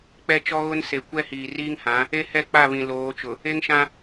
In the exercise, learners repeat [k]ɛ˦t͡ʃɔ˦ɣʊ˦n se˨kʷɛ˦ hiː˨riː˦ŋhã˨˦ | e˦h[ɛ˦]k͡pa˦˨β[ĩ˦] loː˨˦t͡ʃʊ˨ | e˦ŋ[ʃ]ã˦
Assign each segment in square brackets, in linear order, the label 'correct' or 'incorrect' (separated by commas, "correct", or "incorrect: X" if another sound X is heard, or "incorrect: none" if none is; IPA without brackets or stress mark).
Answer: incorrect: k͡p, incorrect: ɛ˦˨, incorrect: ĩ˨, correct